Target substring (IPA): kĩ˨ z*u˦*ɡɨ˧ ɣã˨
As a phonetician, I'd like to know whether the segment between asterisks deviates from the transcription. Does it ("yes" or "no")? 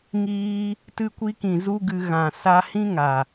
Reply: no